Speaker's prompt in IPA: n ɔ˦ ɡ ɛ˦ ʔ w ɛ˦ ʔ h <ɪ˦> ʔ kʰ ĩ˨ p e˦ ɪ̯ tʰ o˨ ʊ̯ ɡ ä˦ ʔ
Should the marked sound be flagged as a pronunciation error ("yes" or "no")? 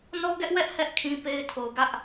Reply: yes